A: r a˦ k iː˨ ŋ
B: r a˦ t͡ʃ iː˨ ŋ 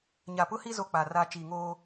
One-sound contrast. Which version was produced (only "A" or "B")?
B